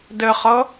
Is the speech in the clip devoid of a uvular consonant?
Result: no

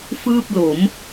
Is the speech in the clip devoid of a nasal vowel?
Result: yes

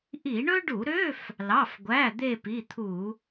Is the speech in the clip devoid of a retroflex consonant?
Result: no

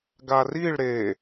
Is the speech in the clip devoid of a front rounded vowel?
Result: yes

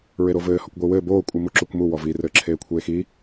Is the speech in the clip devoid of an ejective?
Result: no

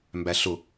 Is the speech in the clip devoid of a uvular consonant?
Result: yes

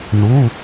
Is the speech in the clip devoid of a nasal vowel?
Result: yes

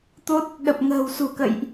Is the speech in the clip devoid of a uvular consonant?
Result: yes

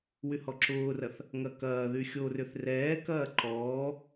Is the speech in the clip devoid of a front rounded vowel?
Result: no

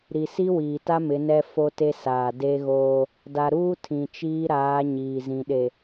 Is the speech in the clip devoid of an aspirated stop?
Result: no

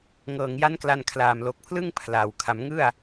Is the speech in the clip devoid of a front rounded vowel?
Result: yes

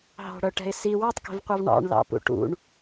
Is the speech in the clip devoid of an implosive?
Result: yes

